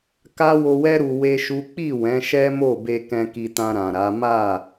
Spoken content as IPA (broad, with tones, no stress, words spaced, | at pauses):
ka˦ wo˧wɛ˦ ɾu˧we˦ʃu˦ k͡pi˦˨ wɛ̃˨˦ʃɛ˦mo˦˨be˧ kɛ̃˧ki˧tã˧ ɾã˨ɾa˨˦ ma˦˨